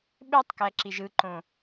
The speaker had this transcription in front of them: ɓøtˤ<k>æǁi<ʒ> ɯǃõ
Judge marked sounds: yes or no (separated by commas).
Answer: yes, yes